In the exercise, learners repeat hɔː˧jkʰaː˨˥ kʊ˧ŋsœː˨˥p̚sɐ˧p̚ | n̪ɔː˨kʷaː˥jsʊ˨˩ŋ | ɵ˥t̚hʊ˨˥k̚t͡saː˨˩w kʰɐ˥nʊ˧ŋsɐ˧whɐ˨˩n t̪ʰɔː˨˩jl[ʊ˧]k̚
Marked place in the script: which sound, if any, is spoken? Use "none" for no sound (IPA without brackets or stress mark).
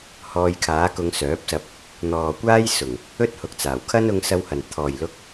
ʊ˧